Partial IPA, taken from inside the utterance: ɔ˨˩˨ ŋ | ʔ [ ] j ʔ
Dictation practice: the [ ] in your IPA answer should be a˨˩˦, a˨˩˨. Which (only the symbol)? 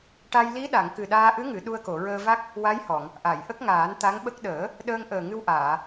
a˨˩˨